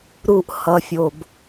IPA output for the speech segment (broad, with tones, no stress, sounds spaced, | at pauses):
ɾ u˦ ʔ h ʌ˦ fʲ o˦ b